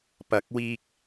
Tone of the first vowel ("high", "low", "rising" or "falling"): rising